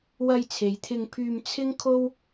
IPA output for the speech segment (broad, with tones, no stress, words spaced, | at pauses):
wɐ˧jt͡sʰe˨˧jt̪ʰɪ˧ŋpʰyː˧m t͡sʰɪ˥ŋkʰo˥w